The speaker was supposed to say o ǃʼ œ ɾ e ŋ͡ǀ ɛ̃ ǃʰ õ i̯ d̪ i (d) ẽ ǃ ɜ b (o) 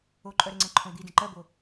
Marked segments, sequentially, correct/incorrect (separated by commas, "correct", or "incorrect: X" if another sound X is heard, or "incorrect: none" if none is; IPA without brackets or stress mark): correct, correct